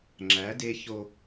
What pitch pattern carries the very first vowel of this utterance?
rising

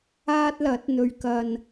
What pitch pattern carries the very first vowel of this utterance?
high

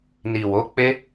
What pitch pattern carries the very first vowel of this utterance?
low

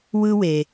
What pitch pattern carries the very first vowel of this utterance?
high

